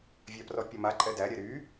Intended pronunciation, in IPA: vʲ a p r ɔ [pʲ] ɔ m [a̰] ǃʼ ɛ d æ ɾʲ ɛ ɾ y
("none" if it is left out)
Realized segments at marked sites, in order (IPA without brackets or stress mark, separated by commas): pʲ, a